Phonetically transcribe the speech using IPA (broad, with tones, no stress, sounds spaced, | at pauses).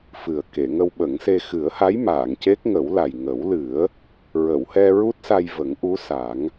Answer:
f ɨ˨˩ ə̯ k e˨˩˨ ŋ ə˧ w ɓ ə˨˩˦ ŋ s e˧ x ɨ˨˩˦ ə̯ h a˧˥ j m aː˨˩˨ ŋ c e˦˥ k̚ ŋ ə˨˩˦ w l a˨˩ j ŋ ə˨˩˦ w l ɨ˨˩˦ ə̯ | ɹ ə˨˩˨ w h ɛ˧ ɹ u˦˥ t̚ s a˧ j v ə˨˩˦ ŋ ʔ u˧˥ s a˨˩˦ ŋ